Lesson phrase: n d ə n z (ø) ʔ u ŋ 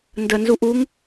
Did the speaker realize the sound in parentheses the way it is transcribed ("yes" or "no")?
no